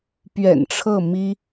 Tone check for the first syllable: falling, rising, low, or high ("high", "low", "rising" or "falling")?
low